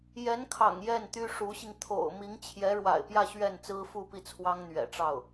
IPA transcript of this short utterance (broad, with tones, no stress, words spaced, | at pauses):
jɛ˧˥nkʰɑ̰˨˩ŋ jɛ˥˩nt̪y˥ʂu˧˥ɕi˧ŋ t̪ʰo̰˨˩ʊ̯ mi˧˥ŋt͡ɕʰjɛ˧˥ɻwa̰˨˩ɪ̯pjä˥˧ ɕɥɛ˥˩n t͡sɹ̩˥fu˥˧pi˥˩ t͡sʰwɑ˥ŋn̪ɥɛ̰˨˩ʈ͡ʂɑ˥˩ʊ̯